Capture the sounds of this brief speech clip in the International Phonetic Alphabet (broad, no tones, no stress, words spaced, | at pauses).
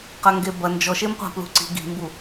qɐŋɡebɐ nd͡ʒɔʃemqʷa̤ plṳǀi̤ ɡi̤mbu